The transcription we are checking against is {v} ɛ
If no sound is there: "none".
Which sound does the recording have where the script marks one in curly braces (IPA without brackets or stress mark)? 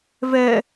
v